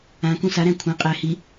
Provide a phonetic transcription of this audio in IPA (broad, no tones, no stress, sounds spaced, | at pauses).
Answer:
ã k ũ s a ɾ æ̃ kʷʰ ã qʼ æ h i